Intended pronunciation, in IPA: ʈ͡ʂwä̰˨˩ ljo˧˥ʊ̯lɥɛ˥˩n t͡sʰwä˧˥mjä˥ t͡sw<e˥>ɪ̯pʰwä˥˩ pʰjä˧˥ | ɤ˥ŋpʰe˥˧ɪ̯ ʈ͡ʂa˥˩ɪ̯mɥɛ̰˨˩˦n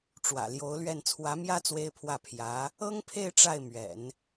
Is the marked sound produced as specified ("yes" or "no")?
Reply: yes